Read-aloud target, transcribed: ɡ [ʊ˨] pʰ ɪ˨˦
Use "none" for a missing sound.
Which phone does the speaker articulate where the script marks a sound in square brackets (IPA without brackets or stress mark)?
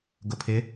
ʊ˨